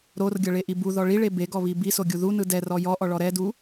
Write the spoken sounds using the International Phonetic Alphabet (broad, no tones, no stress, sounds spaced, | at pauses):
ɾ o r ɡʲ ɤ ɭ e ʔ i b u ð ɔ ɭ i ɭ e b e ɡ ɔ β i b i s o ɡʲ u ð u n ɯ d ɛ r ɔ j ɔ ʔ ɔ ɭ ɔ ɾ ɛ d u